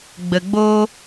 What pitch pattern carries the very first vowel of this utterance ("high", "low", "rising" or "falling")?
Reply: low